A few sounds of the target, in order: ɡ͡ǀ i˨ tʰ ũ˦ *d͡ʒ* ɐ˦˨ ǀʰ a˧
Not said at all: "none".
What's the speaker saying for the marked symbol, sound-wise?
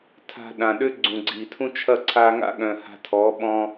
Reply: t͡ʃʰ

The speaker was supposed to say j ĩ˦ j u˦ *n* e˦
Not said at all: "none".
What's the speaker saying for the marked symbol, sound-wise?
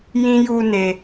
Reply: n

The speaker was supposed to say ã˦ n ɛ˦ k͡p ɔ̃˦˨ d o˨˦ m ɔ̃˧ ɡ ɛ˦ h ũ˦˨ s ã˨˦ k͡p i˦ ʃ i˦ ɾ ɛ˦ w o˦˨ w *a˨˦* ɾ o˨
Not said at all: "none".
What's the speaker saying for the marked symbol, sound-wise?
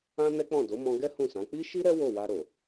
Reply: a˧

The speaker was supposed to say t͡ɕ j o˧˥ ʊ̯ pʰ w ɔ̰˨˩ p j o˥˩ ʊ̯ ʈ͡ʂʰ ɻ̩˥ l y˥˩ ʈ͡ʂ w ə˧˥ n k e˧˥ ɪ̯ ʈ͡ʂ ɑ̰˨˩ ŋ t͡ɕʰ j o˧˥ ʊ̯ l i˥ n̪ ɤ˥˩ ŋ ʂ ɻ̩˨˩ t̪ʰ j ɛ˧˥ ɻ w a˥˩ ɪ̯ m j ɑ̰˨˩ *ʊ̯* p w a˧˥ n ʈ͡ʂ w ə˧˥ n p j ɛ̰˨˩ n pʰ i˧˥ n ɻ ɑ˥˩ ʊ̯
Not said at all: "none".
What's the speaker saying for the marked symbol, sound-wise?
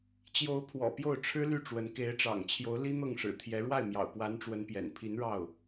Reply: ʊ̯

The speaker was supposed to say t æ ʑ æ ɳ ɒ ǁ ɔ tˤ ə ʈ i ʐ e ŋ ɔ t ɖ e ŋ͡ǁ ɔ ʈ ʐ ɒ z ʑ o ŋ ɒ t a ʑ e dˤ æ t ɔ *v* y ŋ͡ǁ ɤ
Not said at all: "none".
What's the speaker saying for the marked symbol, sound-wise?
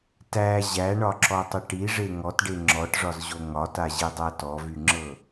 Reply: v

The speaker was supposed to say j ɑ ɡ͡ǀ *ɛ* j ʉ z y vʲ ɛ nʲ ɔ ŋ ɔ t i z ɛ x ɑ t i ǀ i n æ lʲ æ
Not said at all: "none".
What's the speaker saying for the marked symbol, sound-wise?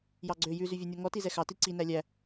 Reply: ø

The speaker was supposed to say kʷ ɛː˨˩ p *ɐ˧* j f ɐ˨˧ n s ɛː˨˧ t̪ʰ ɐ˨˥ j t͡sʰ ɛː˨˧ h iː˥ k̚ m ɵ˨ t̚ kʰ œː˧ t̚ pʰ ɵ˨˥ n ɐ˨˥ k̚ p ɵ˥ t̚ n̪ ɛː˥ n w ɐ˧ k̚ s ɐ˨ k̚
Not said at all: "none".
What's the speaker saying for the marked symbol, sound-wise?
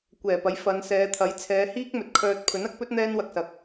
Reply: ɐ˨˥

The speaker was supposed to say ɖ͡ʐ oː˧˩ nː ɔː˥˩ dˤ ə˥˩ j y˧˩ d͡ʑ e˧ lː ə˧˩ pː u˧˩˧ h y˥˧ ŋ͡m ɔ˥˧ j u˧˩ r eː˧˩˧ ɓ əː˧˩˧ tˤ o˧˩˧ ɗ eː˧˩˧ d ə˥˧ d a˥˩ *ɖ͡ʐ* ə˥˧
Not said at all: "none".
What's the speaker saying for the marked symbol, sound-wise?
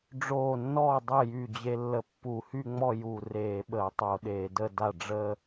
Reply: ɖ͡ʐ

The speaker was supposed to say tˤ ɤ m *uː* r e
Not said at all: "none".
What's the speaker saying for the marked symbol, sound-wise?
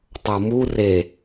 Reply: u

